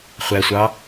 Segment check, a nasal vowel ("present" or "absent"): absent